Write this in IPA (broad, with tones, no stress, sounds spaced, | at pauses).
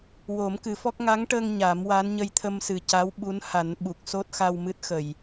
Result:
w o˨˩˦ m k ɨ˨˩˦ f ɔ˦˥ k̚ ŋ a˧˥ ŋ ʈ ə˧ ŋ ɲ a˨˩˦ m w a˧˥ n ɲ ə˧ j t̪ʰ ə˧ m s ɨ˨˩ c a˧˥ w ɓ u˧˥ n h a˨˩˦ n ɓ u˨˩ k̚ s o˦˥ t̚ x a˧ w m ɨ˦˥ t̚ x ə˨˩˨ j